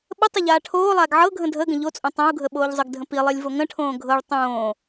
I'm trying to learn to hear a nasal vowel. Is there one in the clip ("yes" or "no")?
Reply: yes